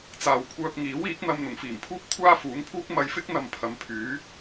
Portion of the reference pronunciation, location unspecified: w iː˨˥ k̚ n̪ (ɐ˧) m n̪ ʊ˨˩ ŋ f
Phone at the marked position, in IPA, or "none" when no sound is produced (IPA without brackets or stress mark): ɐ˧